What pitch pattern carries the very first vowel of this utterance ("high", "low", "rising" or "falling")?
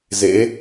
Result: rising